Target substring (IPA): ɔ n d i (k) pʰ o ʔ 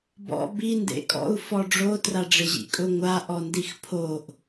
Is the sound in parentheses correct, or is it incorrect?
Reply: incorrect